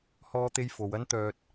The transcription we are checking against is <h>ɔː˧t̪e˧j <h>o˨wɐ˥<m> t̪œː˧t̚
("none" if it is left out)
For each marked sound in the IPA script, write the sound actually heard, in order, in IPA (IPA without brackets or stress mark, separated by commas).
h, f, n